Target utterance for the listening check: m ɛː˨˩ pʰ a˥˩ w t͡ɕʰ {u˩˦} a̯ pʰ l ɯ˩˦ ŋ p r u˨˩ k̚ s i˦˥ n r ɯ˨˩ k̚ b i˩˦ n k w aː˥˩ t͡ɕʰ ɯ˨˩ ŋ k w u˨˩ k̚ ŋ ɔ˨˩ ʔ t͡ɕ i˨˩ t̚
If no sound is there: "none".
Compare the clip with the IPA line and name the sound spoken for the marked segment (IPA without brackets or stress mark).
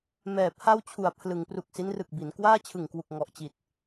u˨˩